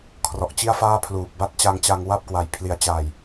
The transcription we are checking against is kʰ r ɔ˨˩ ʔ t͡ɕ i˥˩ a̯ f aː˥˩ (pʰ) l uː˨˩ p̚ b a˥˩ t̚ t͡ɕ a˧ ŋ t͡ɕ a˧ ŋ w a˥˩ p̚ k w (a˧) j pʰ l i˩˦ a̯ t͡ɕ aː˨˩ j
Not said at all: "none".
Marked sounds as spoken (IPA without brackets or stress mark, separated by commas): pʰ, a˨˩